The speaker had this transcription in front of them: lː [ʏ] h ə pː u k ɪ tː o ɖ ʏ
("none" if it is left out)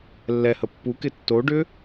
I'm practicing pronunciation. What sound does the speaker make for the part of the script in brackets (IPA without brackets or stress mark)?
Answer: ɛ